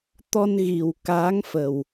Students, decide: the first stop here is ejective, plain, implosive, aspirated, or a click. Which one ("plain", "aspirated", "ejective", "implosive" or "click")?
plain